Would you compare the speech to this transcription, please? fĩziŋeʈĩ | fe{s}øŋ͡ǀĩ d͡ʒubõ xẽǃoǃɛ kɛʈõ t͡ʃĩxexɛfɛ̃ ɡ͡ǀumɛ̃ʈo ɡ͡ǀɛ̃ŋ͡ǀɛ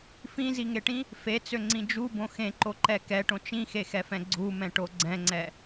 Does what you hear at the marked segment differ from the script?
yes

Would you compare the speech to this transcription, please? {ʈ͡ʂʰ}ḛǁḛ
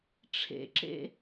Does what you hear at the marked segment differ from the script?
no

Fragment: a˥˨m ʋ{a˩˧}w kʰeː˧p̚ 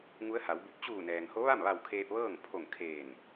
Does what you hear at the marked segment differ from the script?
yes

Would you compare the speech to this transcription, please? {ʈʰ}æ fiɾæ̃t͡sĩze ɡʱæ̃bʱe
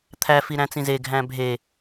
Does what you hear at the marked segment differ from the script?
yes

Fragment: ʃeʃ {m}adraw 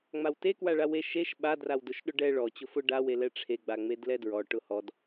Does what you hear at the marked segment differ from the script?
yes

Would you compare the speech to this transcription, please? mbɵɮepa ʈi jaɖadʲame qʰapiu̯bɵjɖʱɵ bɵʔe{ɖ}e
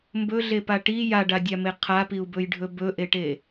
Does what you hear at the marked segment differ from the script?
yes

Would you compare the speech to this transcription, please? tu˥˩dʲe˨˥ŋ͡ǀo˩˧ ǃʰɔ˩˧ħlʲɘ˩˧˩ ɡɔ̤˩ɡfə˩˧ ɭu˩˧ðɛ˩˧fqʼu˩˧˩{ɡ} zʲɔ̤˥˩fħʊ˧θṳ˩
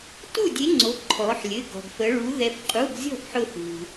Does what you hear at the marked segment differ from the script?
no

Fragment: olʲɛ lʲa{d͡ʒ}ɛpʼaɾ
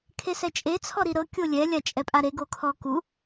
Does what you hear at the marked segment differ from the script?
yes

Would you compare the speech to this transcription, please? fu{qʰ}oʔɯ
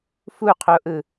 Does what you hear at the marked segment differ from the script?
no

